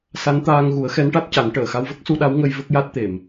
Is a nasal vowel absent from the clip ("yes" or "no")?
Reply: yes